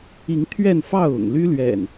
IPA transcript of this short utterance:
i˨˦ ŋ t̪ʰ ɥ ɛ˥˨ n f ɑ˥˨ ʊ̯ ʊ̰˨˩ ŋ l y˦ l ɥ ɛ̰˨˩ n

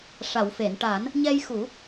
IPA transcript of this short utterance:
ʂ a˨˩˨ w f e˨˩˨ n ʈ a˨˩˦ n | ɲ ɛ˧ j x u˨˩˦

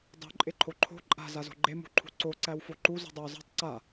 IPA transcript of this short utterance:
dˤ ṳ ǃʼ e ǃʰ o ǃʰ o̤ ǃʼ a̤ z a z o̤ ɡ͡ǃ e m ṳ ǃʰ ṳ ǀ o ǀ æ w f o ǃ u z ṳ dˤ æ w z a̤ tˤ ǀ a

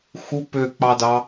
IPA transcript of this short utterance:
x u p ø k͡p ɑ d ɑ

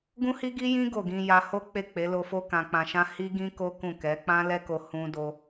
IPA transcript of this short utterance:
ɡ ũ˦ h i˦ ɡ i˦ j ĩ˦ ɡ o˦˨ ɡ ĩ˧ j a˧ h o˦ k͡p e˦˨ k͡p e˨˦ l o˧ f o˦ k ã˧ k͡p ã˧ ʃ ã˦ h i˦ ɡ ĩ˦ k o˦ k ũ˦˨ k ɛ˨˦ k͡p ã˦ l ɛ˦ k o˧ h ũ˧ d o˧

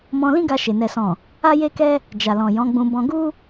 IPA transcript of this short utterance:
m ɔ̃˧ l ĩ˦ ɡ a˧ ʃ e˧ n ɛ˨ s ɔ̃˨ | a˦ j e˦ k ɛ˦ | d͡ʒ a˨ l ɔ̃˨ j ɔ̃˨˦ ɡ͡b ũ˧ b ɔ̃˧ ɡ u˦

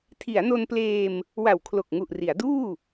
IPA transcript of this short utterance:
tʰ i˩˦ a̯ n o˧ n p l eː˧ m | w a˨˩ w kʰ l o˨˩ k̚ ŋ u˨˩ ʔ r i˩˦ a̯ d uː˥˩

